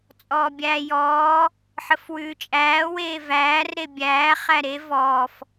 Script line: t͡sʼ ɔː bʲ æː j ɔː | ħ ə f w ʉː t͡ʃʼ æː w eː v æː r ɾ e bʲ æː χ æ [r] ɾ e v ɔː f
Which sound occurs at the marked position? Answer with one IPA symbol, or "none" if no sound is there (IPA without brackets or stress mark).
none